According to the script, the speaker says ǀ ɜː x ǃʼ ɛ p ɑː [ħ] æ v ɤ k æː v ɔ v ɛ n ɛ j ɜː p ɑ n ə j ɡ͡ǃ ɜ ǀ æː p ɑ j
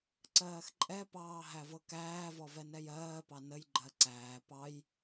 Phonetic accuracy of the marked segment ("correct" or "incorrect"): incorrect